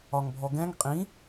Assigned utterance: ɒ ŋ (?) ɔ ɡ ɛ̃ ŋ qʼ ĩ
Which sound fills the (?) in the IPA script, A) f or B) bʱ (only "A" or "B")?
B